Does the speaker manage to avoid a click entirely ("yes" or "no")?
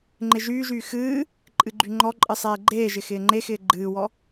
no